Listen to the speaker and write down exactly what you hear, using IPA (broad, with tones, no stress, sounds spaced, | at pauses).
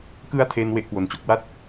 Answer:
k ɯ˦˥ a̯ tʰ e˧ n w e˦˥ ʔ k w o˧ n t͡ɕ o˦˥ k̚ w a˥˩ t̚